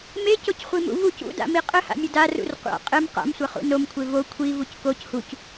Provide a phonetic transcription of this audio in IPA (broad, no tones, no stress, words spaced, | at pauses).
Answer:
mecocχʷimṵ vuc ṵda̰mi qʼɘha̰mʲɘ darṵr qʷa̰ qʼɘm qa̰msʷɐχṵ nomkʷʰe vo kʷʰivuc koc huc